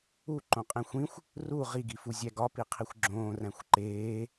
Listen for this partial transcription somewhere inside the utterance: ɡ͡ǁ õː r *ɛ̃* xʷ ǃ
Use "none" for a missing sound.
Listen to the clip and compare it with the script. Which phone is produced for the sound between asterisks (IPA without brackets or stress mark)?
æ̃